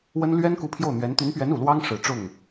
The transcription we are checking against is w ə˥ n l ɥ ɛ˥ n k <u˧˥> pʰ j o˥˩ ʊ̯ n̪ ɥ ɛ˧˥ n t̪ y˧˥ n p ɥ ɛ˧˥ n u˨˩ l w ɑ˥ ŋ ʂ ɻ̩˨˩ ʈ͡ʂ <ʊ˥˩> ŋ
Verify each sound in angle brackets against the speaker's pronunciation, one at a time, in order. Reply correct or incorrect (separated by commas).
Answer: correct, correct